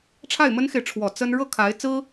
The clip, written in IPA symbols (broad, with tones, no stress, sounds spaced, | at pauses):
ʈ͡ʂʰ a˥˩ ɪ̯ m ə˥ n x e˨ ɪ̯ ʈ͡ʂʰ w ɔ˨˩ t͡s ə˥ n ɻ ɤ˥˩ kʰ a˧˥ ɪ̯ t͡s ɹ̩˥